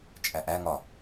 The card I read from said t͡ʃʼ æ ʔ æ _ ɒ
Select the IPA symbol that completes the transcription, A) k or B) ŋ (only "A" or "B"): B